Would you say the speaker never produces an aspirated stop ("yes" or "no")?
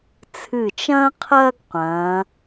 no